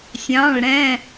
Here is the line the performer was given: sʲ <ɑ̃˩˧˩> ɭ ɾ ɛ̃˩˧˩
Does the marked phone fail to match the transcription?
no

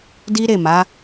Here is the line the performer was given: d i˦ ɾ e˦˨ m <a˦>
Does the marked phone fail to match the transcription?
yes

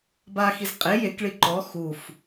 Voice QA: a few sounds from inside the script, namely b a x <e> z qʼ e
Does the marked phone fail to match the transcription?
yes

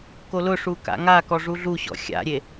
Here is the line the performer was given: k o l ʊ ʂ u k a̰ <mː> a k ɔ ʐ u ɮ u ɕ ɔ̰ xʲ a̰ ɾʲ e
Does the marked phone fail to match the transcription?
yes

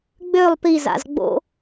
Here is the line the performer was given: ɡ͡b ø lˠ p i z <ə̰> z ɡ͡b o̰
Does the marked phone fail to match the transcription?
yes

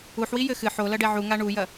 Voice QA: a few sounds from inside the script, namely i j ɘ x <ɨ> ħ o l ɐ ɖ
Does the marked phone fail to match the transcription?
no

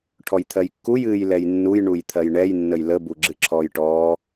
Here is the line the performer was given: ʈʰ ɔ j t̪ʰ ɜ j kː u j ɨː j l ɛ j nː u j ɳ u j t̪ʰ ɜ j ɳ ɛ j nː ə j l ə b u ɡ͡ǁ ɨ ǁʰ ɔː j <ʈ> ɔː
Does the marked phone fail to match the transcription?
no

